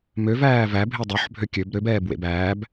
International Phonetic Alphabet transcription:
m ø v æː v æ bʱ e dˤ ø ħ bʱ ø kʲ ø b ɾ ø b ɛː b w ḛ b æː b

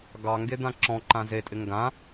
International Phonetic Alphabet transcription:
ɡ ɑ ŋ ɡ e d̪ ã ǁ ɔ̃ ǃ ã z e tʼ ɪ ŋ ɡ ã

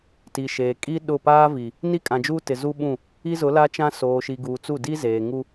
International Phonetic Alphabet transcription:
t i˨ ʃ eː˨ kʼ i˦ ɗ ʊ˦˨ p aː˦ v i˨ | n i˦ kʼ ã˨ d͡ʒ uː˦ t ɪ˨ z u˦ ɓ ũ˦˨ | i˦ z ʊ˨˦ l a˦ t͡ʃ ã˦ s oː˨ ʃ i˨ ɡ uː˨ t͡s u˦˨ d i˦ z eː˨ ŋ u˦

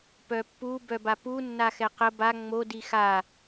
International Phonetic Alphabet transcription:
p œ pː u b œ b a p u nː a x ɛ q ə b a ŋ͡m o d i x a

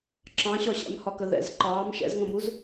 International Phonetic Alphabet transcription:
ǁ ɑ̃ ɕ ɒ ɕ æ̰ m h ɒ k ə ð ɛ̰ z ǃ ɑː m ʃ ɛ̰ z ŋ ə̃ m u z

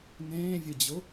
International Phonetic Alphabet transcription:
n ẽː vʲ ɨ d͡ʑ ʊ

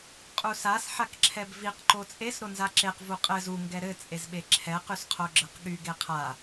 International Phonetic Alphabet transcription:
qʼ u s a s ħ a k ǁʰ ɛ b v i q ǃ o t͡sʼ e s ɾ o n z a ǁ e q v u qʼ ɘ z u ŋ ɡ ɛ ɾ ɘ t͡sʼ e z ɓ e ǁʰ ɛ q y s qʰ o ɡ͡ǁ ɘ q ɠ y ɡ e qʰ a

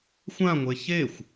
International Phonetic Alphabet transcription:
xʷ ã ŋʷ e ç e xʷ

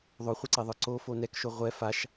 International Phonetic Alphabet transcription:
ðˤ o χʷ ɛ ǀ ɛ ðˤ ə˞ ǀ o f o n ɛ k ʃ o ʁʷ ɛ f a ʃ

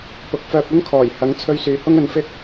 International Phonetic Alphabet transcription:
p ʊ˨ k̚ f œː˧ p̚ ɵ˥ n kʰ ɔː˨˩ j h ɐ˨˥ ŋ t͡sʰ ɵ˥ ɥ s yː˧ h ʊ˥ ŋ ɵ˧ n f ɪ˥ k̚

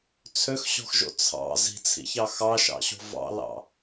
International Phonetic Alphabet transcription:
t͡sʰ ø x ɕ ɔ̤ x ʒ o̰ t͡sʰ ɑ̰ z i̤ t͡sʰ ḭ ç ɑ x ɑ ʃ ɑ̰ ɕ o̤ v ɑ̰ l ɑ̰

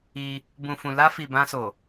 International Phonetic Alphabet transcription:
i˧ | b ũ˨ f ũ˨ l a˧ f i˨ b ã˧ s o˨

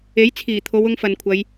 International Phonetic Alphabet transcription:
e˨˥ j t͡sʰ iː˨˩ t̪ʰ o˨˧ w ʊ˧ ŋ f ɐ˨ n kʷʰ ɐ˨˧ j

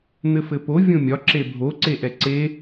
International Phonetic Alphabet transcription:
n̪ ɘ f ɘ p o vʲ õ mʲ ɒ ǁ e bʱ o ǀ e ʔ ɛ ǀ e

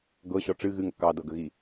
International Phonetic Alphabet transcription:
ɡ ɤ ɕ ɔ ʈ͡ʂ ɨ ɣ ɨ ŋ ə̰ k ɑ d ɤ ɡ ə ɣ i

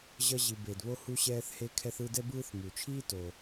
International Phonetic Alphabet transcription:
ʑ ʌ˥ ʑ i˨ b e˩ d β o˦ h u˦ ɕ ɛː˦ θ h e˦ kʰ ɛ˦ θ ɯ˦ d ɛ˥ b ɯː˥ θ m u˩ t͡ʃʰ iː˥ t o˩

